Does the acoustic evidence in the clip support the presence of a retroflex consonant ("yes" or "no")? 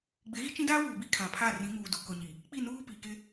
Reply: no